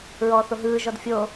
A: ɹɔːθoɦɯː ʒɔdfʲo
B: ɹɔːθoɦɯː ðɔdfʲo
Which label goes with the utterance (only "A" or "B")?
A